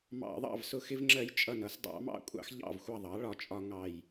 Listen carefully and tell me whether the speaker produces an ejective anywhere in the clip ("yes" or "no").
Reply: yes